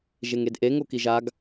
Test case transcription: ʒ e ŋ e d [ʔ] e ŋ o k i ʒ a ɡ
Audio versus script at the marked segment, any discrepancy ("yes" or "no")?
no